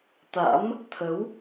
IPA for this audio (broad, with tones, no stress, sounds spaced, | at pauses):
t̪ a̰˧˥ m | t̪ʰ ə˨˦ w